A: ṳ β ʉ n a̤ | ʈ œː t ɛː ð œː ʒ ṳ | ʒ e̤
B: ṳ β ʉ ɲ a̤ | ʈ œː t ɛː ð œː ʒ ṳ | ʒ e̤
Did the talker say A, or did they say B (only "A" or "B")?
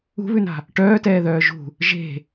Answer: A